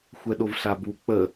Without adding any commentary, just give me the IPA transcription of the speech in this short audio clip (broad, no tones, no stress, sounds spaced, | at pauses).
xʷ ɛ ɗ o v ɬ a b u k͡p ə